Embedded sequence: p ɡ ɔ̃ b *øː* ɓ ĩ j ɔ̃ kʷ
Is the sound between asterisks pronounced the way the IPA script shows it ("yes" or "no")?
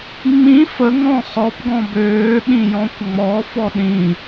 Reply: yes